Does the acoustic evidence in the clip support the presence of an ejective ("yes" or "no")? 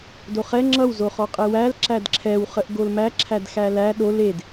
yes